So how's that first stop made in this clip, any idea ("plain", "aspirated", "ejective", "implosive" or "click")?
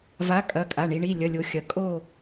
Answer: ejective